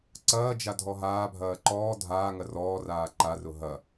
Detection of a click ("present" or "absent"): present